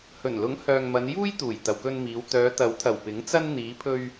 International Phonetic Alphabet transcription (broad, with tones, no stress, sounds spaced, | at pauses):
h ɵ˨˩ n l ʊ˨˥ ŋ h œː˨ ŋ m ɐ˨˧ n j uː˥ j t̪ uː˨˩ j t̪ ɐ˨ w k ɵ˧ n m iː˨˧ w t̪ œː˨˧ t̪ ɐ˨˥ w t̪ʰ ɐ˨˩ w p ɪ˨˥ ŋ t͡s ɐ˥ n n̪ iː˨˧ pʰ ɵ˧ ɥ